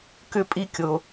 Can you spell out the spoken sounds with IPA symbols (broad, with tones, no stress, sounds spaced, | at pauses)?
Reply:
k ʏ˥ pʼ i˥ kʲ o˧